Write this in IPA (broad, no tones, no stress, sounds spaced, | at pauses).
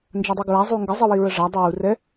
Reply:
n d͡ʒ a dˤ u ɡ ɹ a zˤ u ŋ ɡ ə zˤ ɯ w i ɹ ə ʐ a dˤ u w u r ɛ